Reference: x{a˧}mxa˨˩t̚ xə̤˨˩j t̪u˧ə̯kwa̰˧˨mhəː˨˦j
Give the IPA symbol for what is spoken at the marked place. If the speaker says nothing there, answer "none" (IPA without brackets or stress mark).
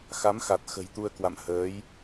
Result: a˨˦